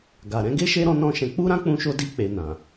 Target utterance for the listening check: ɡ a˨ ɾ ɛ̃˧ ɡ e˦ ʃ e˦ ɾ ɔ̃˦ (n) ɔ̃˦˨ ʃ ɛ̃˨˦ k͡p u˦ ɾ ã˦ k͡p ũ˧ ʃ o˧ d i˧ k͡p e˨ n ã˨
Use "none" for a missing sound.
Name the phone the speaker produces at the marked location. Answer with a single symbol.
n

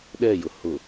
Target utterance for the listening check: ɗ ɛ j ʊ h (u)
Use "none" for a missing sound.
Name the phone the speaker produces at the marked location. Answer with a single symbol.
ʊ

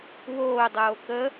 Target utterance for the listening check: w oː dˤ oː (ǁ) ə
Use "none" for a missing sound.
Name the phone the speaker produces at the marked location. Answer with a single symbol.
k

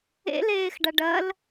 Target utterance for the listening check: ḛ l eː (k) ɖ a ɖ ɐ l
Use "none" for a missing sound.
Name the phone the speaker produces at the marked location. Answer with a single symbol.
x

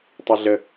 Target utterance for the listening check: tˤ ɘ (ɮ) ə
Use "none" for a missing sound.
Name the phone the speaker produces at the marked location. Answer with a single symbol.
ɮ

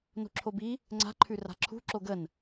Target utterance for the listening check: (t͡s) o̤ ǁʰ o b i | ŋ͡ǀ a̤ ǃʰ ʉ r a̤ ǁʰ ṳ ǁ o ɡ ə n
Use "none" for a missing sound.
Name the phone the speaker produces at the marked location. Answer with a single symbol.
n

